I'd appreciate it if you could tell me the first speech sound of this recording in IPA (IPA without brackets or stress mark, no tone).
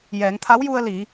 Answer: j